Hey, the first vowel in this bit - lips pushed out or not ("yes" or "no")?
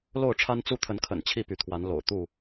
yes